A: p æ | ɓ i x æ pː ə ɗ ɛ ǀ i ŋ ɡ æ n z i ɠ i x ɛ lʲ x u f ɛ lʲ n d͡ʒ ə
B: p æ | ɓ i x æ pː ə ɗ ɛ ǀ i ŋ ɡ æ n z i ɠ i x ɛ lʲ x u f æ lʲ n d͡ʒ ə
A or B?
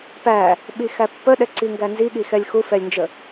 A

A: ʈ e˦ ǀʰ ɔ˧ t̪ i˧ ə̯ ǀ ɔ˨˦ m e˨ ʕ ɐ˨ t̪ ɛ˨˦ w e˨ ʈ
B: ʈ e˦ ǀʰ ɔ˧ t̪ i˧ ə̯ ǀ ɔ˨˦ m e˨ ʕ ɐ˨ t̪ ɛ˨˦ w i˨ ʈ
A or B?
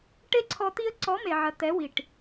B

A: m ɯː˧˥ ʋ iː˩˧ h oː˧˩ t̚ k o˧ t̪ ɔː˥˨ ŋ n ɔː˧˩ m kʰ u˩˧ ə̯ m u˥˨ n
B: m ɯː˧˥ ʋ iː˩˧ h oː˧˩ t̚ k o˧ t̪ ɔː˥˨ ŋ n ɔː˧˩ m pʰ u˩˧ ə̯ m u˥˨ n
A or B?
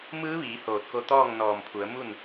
B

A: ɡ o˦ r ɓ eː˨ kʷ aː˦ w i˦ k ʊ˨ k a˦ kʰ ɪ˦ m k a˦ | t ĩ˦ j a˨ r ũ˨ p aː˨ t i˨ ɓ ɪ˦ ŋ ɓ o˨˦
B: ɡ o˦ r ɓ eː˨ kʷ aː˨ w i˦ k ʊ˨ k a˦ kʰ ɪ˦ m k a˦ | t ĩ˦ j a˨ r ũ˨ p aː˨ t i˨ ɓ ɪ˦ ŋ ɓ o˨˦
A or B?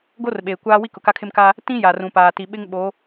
A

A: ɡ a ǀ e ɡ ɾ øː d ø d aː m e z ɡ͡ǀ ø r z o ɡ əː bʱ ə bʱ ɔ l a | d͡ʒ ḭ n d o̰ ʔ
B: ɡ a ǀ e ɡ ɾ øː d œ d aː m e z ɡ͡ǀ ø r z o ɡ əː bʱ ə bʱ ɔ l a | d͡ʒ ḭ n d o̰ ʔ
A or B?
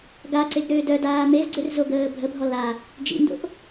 B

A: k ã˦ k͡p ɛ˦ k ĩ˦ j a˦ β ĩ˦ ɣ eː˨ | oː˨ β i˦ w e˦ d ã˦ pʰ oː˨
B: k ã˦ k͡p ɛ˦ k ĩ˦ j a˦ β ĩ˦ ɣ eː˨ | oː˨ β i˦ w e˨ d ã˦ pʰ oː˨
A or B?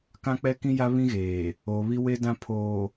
A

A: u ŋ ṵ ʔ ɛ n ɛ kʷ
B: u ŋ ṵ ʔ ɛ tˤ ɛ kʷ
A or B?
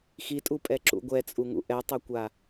B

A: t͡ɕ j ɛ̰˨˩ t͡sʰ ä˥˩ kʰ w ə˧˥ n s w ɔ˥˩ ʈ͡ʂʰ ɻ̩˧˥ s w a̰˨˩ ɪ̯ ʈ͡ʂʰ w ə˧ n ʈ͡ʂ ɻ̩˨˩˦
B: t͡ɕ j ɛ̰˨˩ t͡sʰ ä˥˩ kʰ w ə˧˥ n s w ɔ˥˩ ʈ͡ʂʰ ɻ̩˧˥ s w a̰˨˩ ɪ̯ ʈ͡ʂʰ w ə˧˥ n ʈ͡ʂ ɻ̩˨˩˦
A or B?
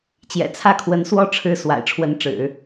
B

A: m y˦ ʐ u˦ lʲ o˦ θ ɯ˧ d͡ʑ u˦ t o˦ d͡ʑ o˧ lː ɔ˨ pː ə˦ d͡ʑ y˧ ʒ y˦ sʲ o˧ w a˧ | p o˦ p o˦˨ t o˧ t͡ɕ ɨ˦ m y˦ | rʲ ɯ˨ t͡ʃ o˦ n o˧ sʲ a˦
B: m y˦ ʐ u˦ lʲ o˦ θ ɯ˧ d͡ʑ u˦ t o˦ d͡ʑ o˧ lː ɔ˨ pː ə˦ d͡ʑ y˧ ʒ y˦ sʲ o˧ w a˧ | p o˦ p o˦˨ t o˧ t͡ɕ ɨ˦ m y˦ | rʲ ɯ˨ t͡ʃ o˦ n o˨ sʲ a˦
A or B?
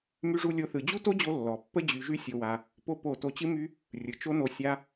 A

